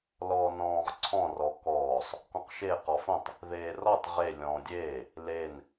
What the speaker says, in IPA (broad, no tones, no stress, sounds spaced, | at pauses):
l ɔː n ɔ̃ː ʁ ǀʰ ɔ̃ r ɔ k ɔː sˤ | k ɔ̃ q ʃ e q ɔ f õ tˤ | ð eː r ɔ tˤ ʁ e lʲ ɔ̃ː dʲ eː | l e n